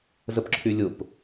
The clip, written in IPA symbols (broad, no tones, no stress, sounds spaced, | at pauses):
z ə p ǁʰ y lʲ ʊ p